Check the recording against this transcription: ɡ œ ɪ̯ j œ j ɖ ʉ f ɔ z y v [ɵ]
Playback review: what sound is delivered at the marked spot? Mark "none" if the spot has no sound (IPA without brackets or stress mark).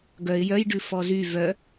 œ